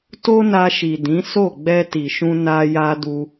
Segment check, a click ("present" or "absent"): absent